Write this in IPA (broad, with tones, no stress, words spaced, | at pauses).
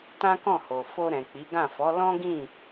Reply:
tã˦kɔ̃˦˨ho˨ fo˧ɾɛ̃˨k͡pi˨˦ɡã˦˨ fɔ˨˦lɔ̃˦ɡĩ˦˨